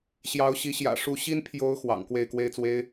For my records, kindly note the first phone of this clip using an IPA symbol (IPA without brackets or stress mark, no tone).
ɕ